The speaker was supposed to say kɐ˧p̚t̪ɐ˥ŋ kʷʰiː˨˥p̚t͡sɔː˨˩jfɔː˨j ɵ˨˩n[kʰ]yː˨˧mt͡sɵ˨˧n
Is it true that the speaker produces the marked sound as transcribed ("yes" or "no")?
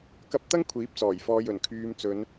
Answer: yes